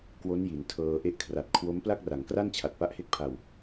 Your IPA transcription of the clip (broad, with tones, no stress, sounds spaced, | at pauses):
k w o˦˥ n j i˩˦ n tʰ ɤː˧ ʔ e˥˩ ʔ kʰ r a˨˩ t̚ kʰ w o˦˥ m p l a˥˩ k̚ r a˩˦ ŋ k r a˥˩ n t͡ɕʰ a˨˩ t̚ p a˦˥ ʔ h e˦˥ k̚ pʰ a˨˩ w